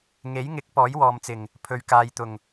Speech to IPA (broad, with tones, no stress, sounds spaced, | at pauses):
ŋ e˨˥ j ŋ ɪ˨˥ k̚ p ɔː˨˥ j w ɔː˨ m t͡s ɪ˨˩ ŋ | pʰ ɵ˨ ɥ k aː˨ j t̪ ʊ˨˩ ŋ